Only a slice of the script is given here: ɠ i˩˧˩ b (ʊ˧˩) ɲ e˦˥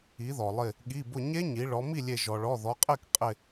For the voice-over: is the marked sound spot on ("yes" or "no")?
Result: yes